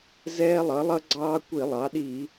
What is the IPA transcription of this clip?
z ɛː˦ lˠ ʌ˩˥ lˠ ʌ˦ ɡ͡ǀ ɑː˦ kʷ i˧˩˧ lˠ ɑ˩˥ ɗ i˧˩˧

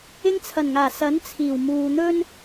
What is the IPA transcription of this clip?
ɪ˧ ŋ t͡sʰ ɐ˨˩ n ŋ aː˨˩ s ɐ˨˥ n t͡sʰ iː˨˩ w m uː˨ n̪ ɵ˥ n

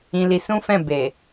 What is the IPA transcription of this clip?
ĩ˧ l i˧ s ũ˦ f ɛ̃˦˨ b e˨

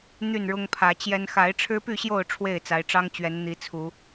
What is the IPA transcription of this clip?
n̪ y˥˨ n ɻ ʊ˦ ŋ pʰ ä˨˦ t͡ɕ j ɛ˦ n x a˨˦ ɪ̯ ʈ͡ʂʰ ɻ̩˦ p y˥˨ ɕ j o˥˨ ʊ̯ ʈ͡ʂʰ w e˥˨ ɪ̯ t͡s a˨˦ ɪ̯ ʈ͡ʂ ɑ˦ ŋ t͡ɕ ɥ ɛ˨˦ n n̪ i˨˦ t͡sʰ u˨˦

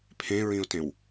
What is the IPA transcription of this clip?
pʰ ẽ ɹ ĩ ʊ̯ t ẽ w

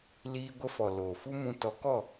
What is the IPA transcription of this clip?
l iː˧ ɡʷ ə˧ f ɔ˨ l oː˨ f u˦ m ũ˧ t ɔ˨˦ k ɔ˦˨

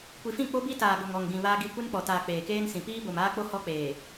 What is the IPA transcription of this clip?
kʷ i˨ f ĩ˦˨ k͡p o˦ b i˦ t aː˨ ɡ o˨ ŋ ɔ˨ ŋ ɡ ĩ˨ β aː˦ ɡ i˦˨ kʷ e˦ n k͡p ɔ˨ t aː˨ k͡p eː˨ k eː˦ n s ĩ˨ p iː˦ b o˨ m aː˦ k͡p o˦ h ɔ˦ k͡p eː˨

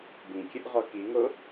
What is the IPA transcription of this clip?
b ĩ kʲ ə ʔ ʁ ɔ k i ŋ o

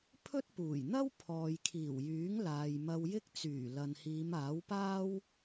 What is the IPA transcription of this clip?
pʰ ɵ˥ t̚ p uː˨˩ j n̪ ɐ˥ w pʰ ɔː˨ j kʰ iː˨˩ w j yː˨˥ ŋ l aː˨ j m ɐ˧ w j ɪ˥ k̚ t͡s yː˨˩ l ɐ˨ n h iː˨˧ m aː˨˥ w p aː˥ w

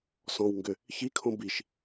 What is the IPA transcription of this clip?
s ɔ̃ w ŋ ɡ ʏ | ç i kʰ õ b i ʃ

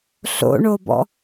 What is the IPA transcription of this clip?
ɬ o̰ ɳ o b ɔ̰

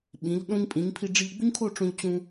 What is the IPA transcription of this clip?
ɓ ĩ˩˧ ʎ ɗ õ˥ ɲ pʼ ĩ˩˧ ɲ pʰ i˧ ɖ͡ʐ i˧ ʎ ɡ͡b u˥ ɲ kʰ o˥˧ ʈ͡ʂ õ˧ ʎ t͡ɕ ũ˧

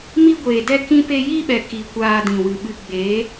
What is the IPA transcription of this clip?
m i˦ ɡʷ eː˨ d ɛ˦ k ĩ˦ p e˦ j iː˦ ɓ ɛ˨ k i˨ kʷ aː˧ d ĩ˨ w ɨ˨ ɓ ɨ˧ ɡ͡b e˨˦

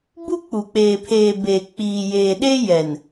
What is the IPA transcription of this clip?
b u˦ k͡p u˨ k͡p eː˨ pʰ eː˨ b e˨ k͡p iː˨ j eː˨ ɗ e˦ j ɛ˨ n

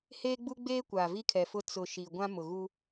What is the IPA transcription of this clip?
h eː˦ ɡ͡b u˦ ɡ͡b eː˦ kʷ aː˨ v i˦ kʰ ɛ˨ f ʊ˦ t͡s ʊ˨ ʃ i˨ ɡʷ ã˦ m ʊ˨ ɣ u˦

